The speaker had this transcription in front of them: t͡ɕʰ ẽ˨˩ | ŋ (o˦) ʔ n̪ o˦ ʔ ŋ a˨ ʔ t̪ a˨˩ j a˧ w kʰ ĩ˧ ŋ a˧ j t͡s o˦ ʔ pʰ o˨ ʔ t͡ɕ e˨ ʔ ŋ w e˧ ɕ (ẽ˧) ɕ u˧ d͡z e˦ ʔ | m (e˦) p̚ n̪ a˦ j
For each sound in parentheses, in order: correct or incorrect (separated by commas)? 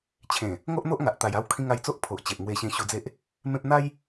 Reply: correct, correct, incorrect